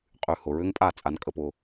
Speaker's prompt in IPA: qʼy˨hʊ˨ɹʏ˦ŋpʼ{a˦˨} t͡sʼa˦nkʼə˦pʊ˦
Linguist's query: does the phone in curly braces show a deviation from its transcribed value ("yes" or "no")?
no